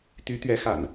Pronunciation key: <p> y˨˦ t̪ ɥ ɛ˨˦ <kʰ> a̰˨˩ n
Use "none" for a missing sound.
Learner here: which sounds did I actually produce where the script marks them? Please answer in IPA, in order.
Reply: t̪, x

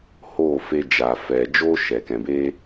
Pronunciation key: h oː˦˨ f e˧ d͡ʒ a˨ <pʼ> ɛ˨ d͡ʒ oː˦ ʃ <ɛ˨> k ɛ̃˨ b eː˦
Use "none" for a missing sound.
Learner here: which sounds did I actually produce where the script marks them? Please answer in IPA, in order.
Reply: f, ɛ˨

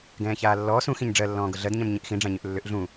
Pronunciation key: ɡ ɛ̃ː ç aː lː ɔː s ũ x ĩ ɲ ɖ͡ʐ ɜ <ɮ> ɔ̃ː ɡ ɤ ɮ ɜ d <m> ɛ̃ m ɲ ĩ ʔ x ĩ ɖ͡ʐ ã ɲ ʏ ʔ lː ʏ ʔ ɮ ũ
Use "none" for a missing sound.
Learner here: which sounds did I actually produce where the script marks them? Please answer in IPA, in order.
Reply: lː, ɲ

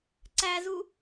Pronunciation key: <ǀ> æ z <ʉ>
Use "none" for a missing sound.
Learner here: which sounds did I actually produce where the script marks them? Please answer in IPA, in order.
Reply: ǀ, u

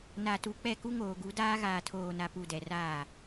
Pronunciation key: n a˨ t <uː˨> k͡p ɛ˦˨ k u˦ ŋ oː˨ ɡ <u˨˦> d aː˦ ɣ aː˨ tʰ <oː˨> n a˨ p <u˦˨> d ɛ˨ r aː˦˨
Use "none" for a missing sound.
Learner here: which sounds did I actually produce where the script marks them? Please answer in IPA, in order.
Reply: u˨, u˨˦, oː˨, u˨

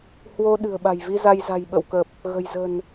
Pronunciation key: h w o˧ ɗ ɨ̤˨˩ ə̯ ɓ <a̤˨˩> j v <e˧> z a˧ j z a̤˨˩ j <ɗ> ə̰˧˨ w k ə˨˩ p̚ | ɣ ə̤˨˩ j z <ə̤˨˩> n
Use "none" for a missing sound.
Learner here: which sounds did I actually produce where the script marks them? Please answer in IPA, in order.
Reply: a̤˨˩, i˧, ɓ, ə̤˨˩

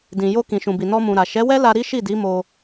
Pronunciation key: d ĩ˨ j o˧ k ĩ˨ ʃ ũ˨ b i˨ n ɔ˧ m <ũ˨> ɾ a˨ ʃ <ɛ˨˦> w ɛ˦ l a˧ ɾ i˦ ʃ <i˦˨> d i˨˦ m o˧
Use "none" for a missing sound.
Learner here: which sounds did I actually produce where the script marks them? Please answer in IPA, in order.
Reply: ũ˨, ɛ˨˦, i˦˨

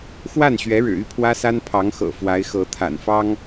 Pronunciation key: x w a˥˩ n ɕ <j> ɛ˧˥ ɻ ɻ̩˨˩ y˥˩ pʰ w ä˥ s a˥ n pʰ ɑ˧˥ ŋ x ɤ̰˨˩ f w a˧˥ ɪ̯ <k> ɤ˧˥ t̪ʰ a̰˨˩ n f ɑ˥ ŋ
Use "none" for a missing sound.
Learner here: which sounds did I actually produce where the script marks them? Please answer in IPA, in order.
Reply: ɥ, x

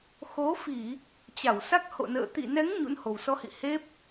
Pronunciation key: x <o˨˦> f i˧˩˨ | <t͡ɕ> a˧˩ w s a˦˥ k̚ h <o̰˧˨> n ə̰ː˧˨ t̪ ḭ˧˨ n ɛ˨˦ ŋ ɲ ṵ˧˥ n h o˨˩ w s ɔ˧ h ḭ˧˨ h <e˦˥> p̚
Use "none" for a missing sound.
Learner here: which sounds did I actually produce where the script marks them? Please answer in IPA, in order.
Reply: o˨˦, t͡ɕ, o̰˧˨, e˦˥

